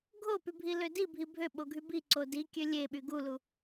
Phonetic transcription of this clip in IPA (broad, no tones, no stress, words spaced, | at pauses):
ɡʱopybʱilø dibʱi bʱøɓoɡʱy bi ǀodi kʲølʲeɓy ɡulu